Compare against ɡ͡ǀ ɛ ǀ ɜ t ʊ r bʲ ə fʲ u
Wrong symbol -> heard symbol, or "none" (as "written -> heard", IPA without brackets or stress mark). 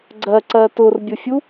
ɛ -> ɜ